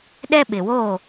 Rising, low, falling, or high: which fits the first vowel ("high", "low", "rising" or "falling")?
high